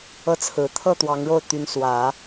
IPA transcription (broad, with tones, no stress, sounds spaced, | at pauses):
ɤ˥˩ t͡sʰ ɹ̩˨˩ t̪ʰ ɤ˥˩ t̪ w ɑ˧˥ ŋ ɻ o˥˩ ʊ̯ t̪ y˧˥ n s w ä˨˩˦